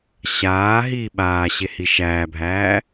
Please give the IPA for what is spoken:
ɕ aː ɦ iː ɓ aː ɕ e h i ʃ æː bʱ æː

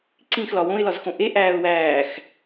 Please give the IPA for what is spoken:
ǀ ĩ x l ɒ w õ ɪ̯ l ɒ z x õ ʔ e ʔ æː ʊ̯ w æː x

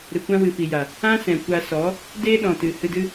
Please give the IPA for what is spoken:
ɾ ɨ˨ kʷ ã˦ w ɨ˨ f i˨ j a˨ | ã˦ s ɛ̃˨ kʷ a˧ s ɔ˨˦ | d eː˦ ɗ ɔ̃˨ t ɨ˨ h ɨ˧ d ɨ˦

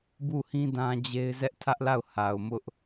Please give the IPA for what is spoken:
b u˦˨ h ĩ˦ d ã˦ d͡ʑ e˦ ɪ̯ z ɛ˦ ʔ tʰ ä˦ ʔ l a˦˨ ʊ̯ h a˨ ʊ̯ m ʊ˦ ʔ

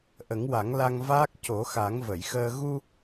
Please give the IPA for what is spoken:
ʔ ə˨˩˦ ŋ w a˨˩˦ ŋ l a˧ ŋ v aː˦˥ k̚ c o˨˩˦ x a˨˩˦ ŋ v ə˨˩˨ j x əː˧ ɣ u˧

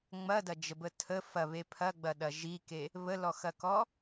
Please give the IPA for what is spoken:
ŋ͡m ɐ d ɐ d͡ʒ ə b ə tʰ ə f ɐ β e pʰ ɐ ɡ͡b ɐ ɗ ɐ ʒ i k e | β ə l ɔ x ɐ k ɔ

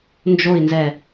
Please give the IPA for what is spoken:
n d͡ʒ o i̯ n z ɛ

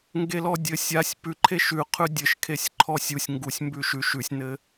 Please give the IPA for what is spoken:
ŋ ɡ e l ɔ dʲ ɘ sʲ a sʲ p ʉ ǃʰ e ʃ ʉ qʰ ʉ dʲ ɘ ʃ kʰ e sʲ ǃʰ ɔ sʲ u sʲ ŋ ɡ u sʲ m b ʉ ʃ ʉ ʃ ʉ sʲ n ɘ

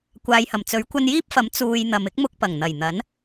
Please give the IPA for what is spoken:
kʷ aː˨ j h ɐ˨˩ m t͡s ɵ˨˥ ɥ kʷ ɐ˧ n j iː˥ p̚ f ɐ˨˥ m t͡s uː˨ j n̪ ɐ˨ m ɪ˥ k̚ m ʊ˧ k̚ p ɐ˨˩ ŋ n̪ ɐ˨˩ j n̪ ɐ˨˥ n

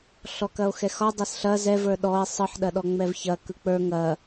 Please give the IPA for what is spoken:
ɬ ɔ k ɐ o̯ x ɛ x ɒ dˤ ɐ s ɬ ɐ z ɛ v ə˞ ɗ ɔ e̯ sˤ ɯ ħ ɗ ɐ ɗ ɔ ŋ͡m ɛ v ç ɐ k ɯ k͡p ə˞ ŋ ɐ

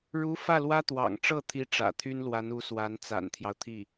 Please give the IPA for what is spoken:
ɻ u˧˥ f ä˥˩ l w ä˥ t̪ w ɑ̰˨˩ ŋ ʈ͡ʂ ɤ˥˩ t̪ʰ i˧˥ ʈ͡ʂ ä̰˨˩ t̪ʰ y˥ n l w a˧˥ n u˧˥ s w a˧˥ n t͡s a̰˨˩ n t̪ʰ j ɑ˦ ʊ̯ t̪ʰ i˥˩

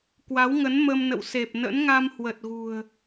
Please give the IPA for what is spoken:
k w a˨˦ w ŋ ə˨˦ n m ə˧ m n ə̰˧˨ w s e˨˩ p̚ n ə̰˧˥ n ŋ a˧ m h w ə˨˩ t̚ ɣ ṳ˨˩ ə̯

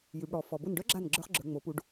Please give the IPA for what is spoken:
j ʉ˩˧ b ɽ ɔ˩˧ f ɔ˩ b ʊ˧˩ n ɖ œ˧˥ ɡ͡ǁ a˧˩ n ɡ͡ǁ ə˞˧˥ χ ɡ͡ǁ ə˞˩˧ ŋ͡m o˩˧ p u˩˧ ɖ

